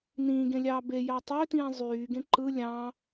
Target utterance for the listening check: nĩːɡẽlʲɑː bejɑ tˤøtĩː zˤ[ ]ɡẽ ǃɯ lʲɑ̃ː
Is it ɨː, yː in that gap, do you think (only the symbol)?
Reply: yː